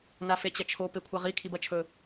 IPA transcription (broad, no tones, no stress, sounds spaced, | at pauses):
n a f e t͡ɕ ɐ t͡ʃʰ o p e kʷʰ a ʁ i kʰ i b ɐ t͡ʃʰ ɵ